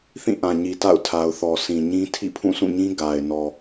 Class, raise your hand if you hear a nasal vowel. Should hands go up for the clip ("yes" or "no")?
yes